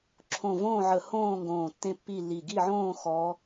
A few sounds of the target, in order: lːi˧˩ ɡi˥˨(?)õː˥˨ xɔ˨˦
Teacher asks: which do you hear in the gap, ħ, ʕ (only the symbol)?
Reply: ʕ